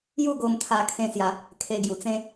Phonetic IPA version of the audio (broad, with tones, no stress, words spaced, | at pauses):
ju˥˧ ɡo˧m t̪ʰa˧kʰẽ˧sja˨˦ | kʰe˧ɡju˨˩t͡sẽ˦